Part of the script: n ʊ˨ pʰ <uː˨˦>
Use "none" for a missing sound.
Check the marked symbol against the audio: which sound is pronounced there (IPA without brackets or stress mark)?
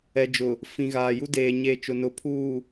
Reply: uː˨